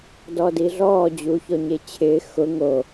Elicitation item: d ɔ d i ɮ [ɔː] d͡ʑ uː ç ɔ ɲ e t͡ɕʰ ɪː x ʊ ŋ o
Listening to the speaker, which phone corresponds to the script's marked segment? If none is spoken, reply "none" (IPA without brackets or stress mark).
ɔː